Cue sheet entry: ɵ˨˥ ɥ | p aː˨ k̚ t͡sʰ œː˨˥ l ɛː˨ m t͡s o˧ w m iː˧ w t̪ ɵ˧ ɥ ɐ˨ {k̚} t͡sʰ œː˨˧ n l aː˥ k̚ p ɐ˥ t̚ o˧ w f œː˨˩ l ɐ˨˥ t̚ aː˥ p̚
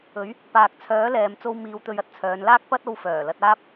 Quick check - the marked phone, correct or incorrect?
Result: incorrect: t̚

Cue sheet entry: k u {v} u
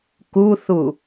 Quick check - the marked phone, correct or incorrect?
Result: incorrect: θ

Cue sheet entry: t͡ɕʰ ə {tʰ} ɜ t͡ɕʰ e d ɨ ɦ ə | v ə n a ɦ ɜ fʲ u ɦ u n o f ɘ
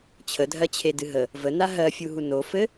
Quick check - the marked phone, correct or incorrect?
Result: incorrect: dʱ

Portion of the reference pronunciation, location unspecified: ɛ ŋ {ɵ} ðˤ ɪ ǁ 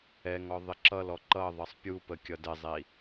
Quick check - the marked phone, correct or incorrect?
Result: incorrect: ɔ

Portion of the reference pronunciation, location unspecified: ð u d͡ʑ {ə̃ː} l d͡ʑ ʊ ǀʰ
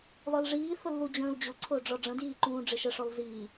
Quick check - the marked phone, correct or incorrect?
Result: correct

